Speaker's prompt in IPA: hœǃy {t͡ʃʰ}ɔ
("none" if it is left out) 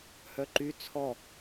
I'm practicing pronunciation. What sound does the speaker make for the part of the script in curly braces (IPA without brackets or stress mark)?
t͡sʰ